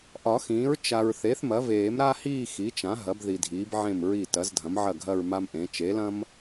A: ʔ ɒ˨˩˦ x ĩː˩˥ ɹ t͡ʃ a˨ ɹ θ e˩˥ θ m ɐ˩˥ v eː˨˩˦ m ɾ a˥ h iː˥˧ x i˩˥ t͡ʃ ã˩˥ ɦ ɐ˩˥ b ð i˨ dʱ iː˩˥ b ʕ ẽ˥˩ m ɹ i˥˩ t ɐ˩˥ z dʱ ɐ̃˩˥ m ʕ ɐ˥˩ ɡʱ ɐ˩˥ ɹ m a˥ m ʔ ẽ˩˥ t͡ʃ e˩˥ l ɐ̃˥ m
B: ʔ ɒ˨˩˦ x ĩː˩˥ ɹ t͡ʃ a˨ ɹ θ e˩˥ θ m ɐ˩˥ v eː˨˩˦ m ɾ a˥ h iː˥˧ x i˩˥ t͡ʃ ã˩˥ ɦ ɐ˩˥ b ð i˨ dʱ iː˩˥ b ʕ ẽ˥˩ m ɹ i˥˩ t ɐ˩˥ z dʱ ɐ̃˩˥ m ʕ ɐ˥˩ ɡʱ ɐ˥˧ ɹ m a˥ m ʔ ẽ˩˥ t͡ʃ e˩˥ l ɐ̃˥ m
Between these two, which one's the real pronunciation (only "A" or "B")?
B